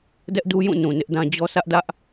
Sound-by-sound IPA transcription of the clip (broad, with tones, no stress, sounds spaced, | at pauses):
d ɛ˦ ʔ d u˦ j ũ˦˨ n ũ˨ n ɪ˦ ʔ d ã˦ d͡ʑ ɔ˦ s ä˦ ʔ d ä˦ ʔ